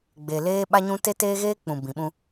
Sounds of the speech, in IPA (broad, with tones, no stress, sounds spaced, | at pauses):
ɡ͡b e˨ l eː˦ ɓ a˦ ɲ ũ˦ t e˦ t eː˦ ɣ eː˦ k͡p ũ˨ b ĩ˨ ɓ ũ˦